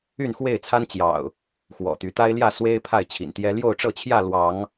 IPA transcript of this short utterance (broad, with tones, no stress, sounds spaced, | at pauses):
y˥˨ n x w e˥˨ ɪ̯ t͡sʰ a˦ n t͡ɕ j ɑ̰˨˩ ʊ̯ | x w ɔ̰˨˩ t̪ y˨˦ t̪ a˦ ɪ̯ l j ä˥˨ s w e˦ ɪ̯ pʰ a˥˨ ɪ̯ t͡ɕʰ ḭ˨˩ n t̪ j ɛ˦ l j o˥˨ ʊ̯ ʈ͡ʂ ɤ˥˨ t͡ɕʰ j ä˥˨ l w ɑ˨˦ ŋ